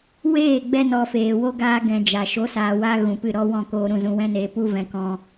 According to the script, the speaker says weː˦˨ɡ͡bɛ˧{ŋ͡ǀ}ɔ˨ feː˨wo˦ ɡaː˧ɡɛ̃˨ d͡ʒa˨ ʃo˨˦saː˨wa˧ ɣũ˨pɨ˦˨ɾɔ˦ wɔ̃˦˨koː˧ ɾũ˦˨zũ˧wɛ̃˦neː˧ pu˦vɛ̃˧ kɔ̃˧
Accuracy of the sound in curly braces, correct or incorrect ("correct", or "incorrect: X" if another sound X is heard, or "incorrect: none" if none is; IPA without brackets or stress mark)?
incorrect: n